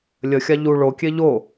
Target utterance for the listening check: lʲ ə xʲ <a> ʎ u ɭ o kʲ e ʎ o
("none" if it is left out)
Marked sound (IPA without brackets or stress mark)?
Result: a